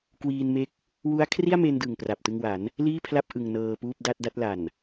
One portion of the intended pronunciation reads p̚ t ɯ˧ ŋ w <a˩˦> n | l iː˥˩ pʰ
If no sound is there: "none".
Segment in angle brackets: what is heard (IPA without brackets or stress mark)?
a˩˦